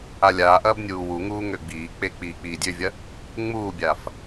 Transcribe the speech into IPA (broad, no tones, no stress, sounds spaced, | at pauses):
a lʲ aː ʔ ɐː b nʲ uː w u ŋ uː ŋ ø ɡ͡b iː k͡p e k͡p iː k͡p iː dʲ ø vʲ ɐ | ŋ͡m uː bʲ aː f